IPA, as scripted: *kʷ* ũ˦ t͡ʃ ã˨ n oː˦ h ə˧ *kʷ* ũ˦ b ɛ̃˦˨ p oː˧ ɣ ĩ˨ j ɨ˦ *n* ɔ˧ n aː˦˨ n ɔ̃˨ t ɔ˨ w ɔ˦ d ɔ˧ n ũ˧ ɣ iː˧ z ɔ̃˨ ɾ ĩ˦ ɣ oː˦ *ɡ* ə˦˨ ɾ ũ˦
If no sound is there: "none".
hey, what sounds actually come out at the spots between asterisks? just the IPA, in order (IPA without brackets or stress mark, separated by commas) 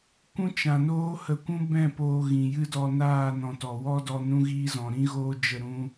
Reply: kʷ, kʷ, d, d͡ʒ